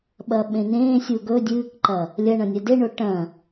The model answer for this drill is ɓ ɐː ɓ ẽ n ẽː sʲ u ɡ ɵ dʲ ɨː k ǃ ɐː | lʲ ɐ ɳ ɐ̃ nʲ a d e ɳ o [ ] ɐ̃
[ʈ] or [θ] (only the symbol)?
ʈ